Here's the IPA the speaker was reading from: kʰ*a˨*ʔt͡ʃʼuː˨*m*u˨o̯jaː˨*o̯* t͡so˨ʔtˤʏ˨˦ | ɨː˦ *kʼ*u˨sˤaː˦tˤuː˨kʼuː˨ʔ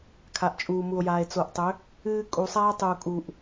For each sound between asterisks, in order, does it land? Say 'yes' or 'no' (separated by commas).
yes, yes, no, yes